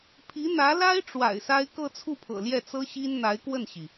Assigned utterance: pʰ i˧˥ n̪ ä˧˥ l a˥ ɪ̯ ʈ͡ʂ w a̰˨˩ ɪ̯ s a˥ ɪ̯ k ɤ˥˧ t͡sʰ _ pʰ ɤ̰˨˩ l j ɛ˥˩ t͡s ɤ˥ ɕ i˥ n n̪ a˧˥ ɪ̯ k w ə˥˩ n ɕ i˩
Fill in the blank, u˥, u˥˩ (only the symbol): u˥˩